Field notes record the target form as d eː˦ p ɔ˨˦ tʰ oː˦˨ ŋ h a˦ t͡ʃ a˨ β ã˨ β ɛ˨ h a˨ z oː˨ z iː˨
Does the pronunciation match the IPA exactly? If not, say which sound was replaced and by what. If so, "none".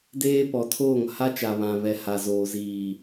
none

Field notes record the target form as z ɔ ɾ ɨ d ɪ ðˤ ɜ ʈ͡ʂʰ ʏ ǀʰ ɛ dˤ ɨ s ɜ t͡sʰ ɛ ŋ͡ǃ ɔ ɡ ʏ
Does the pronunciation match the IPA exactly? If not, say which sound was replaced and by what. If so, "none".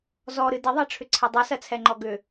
none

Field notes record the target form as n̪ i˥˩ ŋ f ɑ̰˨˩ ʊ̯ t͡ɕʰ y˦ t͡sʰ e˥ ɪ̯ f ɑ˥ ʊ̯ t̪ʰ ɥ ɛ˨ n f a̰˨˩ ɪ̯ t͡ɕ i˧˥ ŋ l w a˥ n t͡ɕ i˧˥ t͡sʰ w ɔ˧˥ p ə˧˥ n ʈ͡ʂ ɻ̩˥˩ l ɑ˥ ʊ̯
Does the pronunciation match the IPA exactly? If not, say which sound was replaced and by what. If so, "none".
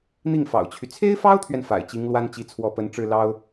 none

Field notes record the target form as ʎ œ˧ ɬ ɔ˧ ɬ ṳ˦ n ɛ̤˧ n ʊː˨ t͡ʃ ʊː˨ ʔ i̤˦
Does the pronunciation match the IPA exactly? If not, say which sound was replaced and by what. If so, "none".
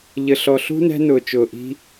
œ˧ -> ə˧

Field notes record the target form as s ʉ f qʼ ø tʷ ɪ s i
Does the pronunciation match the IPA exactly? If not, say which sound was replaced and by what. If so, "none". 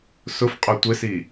ʉ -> ʊ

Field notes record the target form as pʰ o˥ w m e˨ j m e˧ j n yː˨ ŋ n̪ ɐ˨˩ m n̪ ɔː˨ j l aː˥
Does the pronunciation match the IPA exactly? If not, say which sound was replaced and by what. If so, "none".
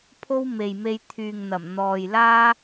n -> t̪ʰ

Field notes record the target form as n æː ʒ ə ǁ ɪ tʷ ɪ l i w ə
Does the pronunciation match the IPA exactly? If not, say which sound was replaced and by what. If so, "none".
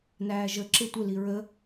w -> ɹ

